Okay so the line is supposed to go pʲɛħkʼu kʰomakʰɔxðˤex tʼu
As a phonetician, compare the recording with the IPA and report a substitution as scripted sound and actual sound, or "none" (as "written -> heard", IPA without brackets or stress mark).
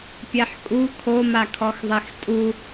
none